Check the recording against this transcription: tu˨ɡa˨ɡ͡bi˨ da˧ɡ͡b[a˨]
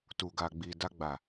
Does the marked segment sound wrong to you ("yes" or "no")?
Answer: no